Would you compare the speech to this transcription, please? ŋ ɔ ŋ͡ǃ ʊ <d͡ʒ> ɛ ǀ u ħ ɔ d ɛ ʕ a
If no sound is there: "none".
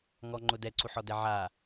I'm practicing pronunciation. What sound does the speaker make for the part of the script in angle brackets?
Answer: d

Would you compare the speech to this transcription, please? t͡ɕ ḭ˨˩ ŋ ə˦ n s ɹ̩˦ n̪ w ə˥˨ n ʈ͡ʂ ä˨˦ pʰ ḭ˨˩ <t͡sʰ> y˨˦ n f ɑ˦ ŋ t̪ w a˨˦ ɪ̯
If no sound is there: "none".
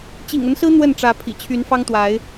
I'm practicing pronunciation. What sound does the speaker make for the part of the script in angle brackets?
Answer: t͡ɕʰ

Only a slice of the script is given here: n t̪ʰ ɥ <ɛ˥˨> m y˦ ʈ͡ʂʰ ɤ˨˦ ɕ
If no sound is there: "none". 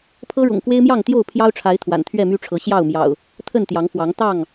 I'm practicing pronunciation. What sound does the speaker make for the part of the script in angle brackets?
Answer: ɛ˥˨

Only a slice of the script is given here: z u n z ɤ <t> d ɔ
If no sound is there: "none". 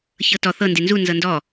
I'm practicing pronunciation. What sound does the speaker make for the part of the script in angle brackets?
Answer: n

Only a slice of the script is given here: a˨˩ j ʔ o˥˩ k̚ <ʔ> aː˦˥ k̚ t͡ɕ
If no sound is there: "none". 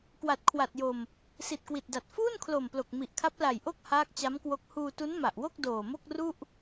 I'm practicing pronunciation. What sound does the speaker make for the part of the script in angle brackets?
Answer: h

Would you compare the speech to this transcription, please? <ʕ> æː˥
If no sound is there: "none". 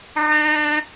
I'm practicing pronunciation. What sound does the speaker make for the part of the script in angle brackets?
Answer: ʕ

